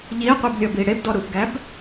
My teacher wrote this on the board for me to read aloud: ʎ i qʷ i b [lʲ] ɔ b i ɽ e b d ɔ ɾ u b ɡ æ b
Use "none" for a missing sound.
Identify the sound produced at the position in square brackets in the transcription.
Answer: lʲ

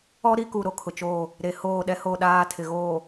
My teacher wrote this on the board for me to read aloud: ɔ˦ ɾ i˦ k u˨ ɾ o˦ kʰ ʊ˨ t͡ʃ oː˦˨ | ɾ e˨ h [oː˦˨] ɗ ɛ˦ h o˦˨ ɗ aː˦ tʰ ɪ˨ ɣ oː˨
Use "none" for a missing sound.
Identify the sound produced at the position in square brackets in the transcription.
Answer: oː˦˨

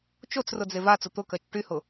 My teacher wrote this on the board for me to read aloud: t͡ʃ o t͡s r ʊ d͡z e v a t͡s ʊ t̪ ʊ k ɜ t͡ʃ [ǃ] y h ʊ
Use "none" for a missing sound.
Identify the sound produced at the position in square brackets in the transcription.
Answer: ʈ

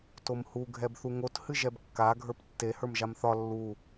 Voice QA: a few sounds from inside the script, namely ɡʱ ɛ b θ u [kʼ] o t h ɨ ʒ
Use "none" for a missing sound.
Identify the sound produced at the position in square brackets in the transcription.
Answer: ŋ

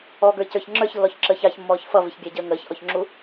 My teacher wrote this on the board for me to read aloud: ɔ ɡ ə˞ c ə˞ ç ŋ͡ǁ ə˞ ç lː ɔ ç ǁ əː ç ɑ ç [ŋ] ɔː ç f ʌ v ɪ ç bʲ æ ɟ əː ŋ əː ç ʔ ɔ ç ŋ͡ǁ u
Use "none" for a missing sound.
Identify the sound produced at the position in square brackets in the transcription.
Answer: mː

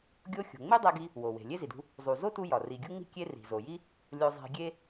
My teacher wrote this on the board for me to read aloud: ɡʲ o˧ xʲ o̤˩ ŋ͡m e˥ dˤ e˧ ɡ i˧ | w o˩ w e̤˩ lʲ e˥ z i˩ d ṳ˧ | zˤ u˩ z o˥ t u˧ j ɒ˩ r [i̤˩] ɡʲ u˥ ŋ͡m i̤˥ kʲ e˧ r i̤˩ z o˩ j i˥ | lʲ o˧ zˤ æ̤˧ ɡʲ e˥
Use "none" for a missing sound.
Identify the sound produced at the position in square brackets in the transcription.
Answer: i˩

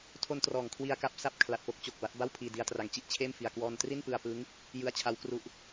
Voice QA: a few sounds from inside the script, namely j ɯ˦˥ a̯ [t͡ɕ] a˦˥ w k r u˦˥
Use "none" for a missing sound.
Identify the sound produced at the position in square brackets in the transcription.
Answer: t͡ɕʰ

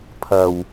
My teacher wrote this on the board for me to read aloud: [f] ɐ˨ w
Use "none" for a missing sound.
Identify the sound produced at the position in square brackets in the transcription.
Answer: pʰ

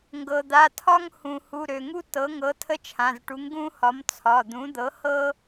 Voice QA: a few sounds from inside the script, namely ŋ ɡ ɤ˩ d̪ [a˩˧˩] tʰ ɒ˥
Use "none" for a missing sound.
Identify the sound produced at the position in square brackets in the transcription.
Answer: a˩˧˩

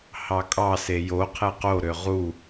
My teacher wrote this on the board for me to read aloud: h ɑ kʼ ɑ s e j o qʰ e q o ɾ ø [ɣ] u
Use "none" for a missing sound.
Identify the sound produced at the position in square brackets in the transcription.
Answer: ʁ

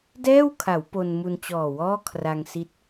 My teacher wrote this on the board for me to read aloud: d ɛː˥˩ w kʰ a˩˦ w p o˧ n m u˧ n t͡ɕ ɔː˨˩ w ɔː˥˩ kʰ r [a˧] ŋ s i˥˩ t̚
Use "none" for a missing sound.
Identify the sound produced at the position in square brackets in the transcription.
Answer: a˧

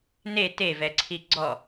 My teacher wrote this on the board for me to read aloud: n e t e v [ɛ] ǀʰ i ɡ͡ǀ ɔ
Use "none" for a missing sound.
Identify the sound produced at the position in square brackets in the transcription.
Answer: ɛ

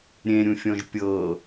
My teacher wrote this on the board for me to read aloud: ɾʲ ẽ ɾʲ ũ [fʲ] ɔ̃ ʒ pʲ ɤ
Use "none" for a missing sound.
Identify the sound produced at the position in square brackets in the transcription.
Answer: fʲ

